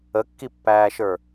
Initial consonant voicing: voiceless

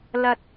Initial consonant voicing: voiced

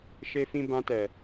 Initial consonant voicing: voiceless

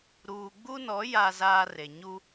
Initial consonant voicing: voiced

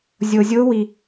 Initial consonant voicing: voiced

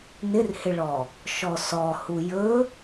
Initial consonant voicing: voiced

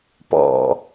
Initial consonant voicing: voiceless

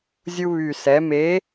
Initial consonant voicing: voiced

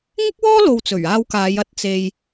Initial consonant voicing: voiced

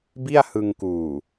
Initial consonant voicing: voiced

